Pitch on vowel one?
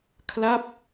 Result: falling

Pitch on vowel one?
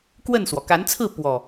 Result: falling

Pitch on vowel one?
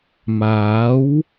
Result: rising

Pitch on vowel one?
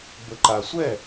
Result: low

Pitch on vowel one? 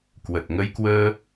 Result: low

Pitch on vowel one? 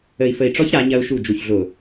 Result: low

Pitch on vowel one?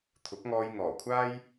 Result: rising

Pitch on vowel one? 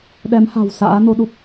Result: rising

